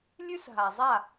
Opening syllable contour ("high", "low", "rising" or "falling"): high